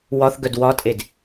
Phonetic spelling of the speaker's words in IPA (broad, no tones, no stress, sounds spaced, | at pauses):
w ɒ θ ɡ œ d w ɒ tʼ e d